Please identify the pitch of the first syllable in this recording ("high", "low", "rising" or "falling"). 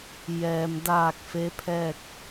low